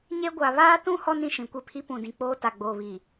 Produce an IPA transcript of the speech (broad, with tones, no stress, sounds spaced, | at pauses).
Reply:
ɲ e˦ ɡʷ a˨ β aː˦ t ũ˦ h ɔ˦ n ĩ˨ ʃ ĩ˨ kʷ e˦˨ pʰ i˦ p ũ˨ d ĩ˨ k͡p oː˦ t a˨ ɡ͡b oː˨ β i˨